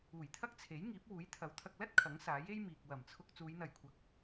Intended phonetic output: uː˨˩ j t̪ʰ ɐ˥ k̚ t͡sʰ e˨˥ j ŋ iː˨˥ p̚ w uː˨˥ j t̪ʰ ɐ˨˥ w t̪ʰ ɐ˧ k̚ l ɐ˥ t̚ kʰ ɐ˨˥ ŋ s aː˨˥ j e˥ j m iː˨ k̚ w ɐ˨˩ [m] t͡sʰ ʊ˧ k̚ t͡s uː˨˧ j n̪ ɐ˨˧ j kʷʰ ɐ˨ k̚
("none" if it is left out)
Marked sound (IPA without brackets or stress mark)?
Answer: m